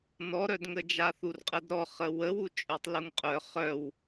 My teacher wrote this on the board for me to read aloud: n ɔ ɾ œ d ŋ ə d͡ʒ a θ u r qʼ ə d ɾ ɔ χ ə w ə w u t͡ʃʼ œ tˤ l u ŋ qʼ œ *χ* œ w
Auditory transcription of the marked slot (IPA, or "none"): χ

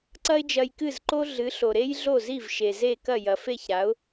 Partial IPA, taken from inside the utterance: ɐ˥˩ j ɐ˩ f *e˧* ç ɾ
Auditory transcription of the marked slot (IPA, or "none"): e˥˩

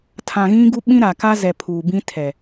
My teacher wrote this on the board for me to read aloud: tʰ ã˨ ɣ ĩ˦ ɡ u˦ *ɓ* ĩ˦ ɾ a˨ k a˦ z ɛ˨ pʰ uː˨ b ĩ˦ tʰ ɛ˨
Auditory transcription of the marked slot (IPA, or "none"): ɓ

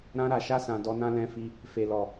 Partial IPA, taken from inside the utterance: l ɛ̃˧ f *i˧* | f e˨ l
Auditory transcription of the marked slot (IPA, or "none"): i˧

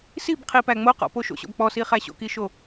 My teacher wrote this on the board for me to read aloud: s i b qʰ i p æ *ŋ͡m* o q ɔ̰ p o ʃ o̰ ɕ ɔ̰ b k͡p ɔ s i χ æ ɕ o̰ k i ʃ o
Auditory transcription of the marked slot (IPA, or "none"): ŋ͡m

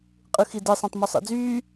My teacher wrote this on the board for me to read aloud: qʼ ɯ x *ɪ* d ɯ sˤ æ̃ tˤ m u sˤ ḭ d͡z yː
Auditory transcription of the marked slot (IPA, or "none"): i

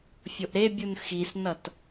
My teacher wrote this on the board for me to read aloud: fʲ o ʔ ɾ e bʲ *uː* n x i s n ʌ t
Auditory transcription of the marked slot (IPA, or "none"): u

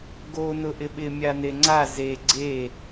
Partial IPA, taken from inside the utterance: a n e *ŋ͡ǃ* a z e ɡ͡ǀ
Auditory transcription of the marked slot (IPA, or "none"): ŋ͡ǀ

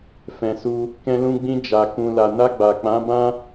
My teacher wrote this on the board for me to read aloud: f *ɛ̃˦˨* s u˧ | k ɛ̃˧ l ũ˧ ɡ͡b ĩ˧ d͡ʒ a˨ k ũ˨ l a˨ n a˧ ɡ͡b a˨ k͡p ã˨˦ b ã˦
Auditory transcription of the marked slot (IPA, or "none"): ɛ̃˨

